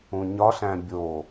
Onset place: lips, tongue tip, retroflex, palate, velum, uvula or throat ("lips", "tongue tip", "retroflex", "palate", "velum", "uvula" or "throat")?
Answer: palate